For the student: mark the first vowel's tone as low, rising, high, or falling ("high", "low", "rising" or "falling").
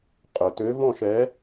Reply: low